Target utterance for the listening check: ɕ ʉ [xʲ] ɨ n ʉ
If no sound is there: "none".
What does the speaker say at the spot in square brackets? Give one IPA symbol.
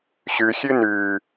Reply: xʲ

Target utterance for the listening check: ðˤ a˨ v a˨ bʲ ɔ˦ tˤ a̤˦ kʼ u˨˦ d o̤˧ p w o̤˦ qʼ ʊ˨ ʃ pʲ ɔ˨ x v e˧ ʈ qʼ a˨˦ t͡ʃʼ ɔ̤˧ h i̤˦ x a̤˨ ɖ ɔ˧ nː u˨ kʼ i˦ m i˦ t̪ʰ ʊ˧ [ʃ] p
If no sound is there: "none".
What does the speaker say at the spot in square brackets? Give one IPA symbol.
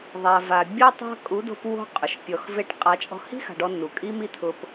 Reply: none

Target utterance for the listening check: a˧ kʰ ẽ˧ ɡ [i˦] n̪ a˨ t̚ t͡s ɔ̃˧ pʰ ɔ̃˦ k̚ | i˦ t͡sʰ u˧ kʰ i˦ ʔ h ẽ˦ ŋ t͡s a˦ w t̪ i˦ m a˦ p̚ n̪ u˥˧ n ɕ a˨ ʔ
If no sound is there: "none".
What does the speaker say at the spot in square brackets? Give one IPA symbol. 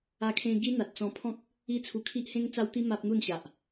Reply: i˦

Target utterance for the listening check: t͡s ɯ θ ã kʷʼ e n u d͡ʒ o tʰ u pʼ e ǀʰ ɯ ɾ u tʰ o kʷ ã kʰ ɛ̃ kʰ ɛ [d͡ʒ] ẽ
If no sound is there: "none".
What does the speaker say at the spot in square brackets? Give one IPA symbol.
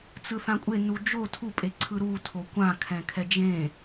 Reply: d͡ʒ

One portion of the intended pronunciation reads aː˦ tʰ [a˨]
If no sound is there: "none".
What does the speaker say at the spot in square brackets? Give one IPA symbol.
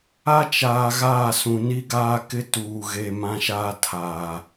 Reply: aː˨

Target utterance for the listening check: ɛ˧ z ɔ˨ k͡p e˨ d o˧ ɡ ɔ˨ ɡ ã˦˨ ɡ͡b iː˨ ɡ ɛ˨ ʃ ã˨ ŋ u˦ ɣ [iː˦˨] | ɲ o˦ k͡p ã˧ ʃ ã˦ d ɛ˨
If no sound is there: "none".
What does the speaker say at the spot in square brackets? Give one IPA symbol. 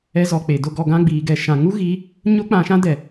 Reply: iː˨˦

